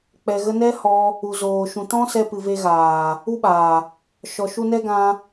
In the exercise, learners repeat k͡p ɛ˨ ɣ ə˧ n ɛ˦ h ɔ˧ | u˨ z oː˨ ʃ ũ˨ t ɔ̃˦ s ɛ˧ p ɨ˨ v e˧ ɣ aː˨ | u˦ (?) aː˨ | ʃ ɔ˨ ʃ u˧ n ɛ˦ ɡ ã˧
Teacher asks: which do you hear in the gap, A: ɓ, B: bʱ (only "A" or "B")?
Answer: A